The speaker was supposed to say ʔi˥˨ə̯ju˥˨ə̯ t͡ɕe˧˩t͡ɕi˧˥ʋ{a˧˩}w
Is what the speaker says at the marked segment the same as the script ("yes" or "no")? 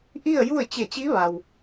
no